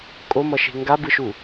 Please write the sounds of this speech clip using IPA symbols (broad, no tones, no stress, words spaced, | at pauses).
kʼomʌʃe̤ ŋɡabɯʃu